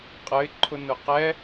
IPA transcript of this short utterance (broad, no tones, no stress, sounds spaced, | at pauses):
qʼ ə ɪ̯ ǃʰ ʊ n ʊ q ɛ